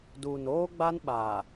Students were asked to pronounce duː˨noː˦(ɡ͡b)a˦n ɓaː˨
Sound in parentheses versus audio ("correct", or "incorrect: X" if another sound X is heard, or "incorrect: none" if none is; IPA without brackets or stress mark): correct